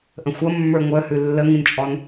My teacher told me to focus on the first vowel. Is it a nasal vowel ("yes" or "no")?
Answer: yes